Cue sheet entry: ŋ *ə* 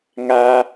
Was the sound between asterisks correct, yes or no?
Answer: no